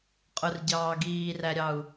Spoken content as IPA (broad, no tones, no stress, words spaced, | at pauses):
qʼʊrɟɑː ɡiːræɾʲɑu̯